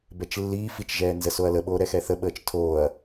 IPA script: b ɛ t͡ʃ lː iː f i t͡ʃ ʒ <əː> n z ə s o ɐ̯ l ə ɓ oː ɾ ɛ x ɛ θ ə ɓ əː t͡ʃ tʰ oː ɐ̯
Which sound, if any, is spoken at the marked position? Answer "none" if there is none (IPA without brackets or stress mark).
ɛː